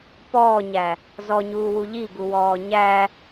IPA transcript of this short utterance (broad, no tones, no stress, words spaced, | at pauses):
pɔːɲæ | zɔɲuːwu ʎiɡuwɔː ɲæ